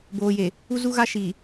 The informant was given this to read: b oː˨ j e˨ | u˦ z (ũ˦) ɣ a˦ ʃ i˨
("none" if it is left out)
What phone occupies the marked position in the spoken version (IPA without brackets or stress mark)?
u˦